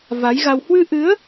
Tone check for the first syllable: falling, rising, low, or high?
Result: rising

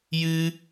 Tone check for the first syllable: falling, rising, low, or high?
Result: high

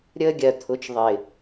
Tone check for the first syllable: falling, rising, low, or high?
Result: high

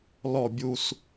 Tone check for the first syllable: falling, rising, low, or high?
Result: falling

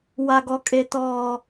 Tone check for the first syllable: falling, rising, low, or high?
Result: low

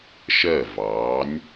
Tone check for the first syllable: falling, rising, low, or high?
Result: falling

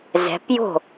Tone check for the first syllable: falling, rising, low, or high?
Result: rising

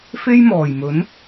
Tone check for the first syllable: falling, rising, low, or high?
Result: high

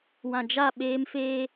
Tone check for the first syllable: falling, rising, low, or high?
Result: low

